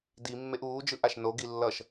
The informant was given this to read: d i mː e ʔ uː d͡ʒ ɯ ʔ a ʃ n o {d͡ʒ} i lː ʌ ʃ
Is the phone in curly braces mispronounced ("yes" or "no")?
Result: yes